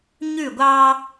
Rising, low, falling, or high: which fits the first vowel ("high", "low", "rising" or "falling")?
falling